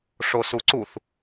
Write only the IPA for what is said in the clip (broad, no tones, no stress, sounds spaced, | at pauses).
ʂ o s u ǀ u θ